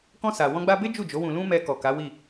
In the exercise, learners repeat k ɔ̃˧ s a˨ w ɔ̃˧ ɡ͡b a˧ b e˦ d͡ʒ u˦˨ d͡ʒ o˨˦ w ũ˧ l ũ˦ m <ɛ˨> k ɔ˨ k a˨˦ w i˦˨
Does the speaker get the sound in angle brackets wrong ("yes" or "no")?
yes